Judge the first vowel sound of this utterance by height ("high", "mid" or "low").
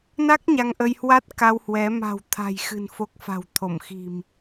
low